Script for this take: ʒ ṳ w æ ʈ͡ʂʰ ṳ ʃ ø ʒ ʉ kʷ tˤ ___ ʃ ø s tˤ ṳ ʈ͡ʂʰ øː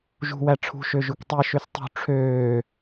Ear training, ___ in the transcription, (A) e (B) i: B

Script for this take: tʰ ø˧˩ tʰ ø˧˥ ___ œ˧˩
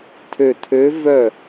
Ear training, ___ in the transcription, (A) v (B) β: A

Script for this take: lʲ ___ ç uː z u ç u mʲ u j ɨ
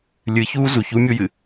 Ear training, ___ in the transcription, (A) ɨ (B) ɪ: A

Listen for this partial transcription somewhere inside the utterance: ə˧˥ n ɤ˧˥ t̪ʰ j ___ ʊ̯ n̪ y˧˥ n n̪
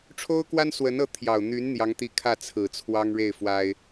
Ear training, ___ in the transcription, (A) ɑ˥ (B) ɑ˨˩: B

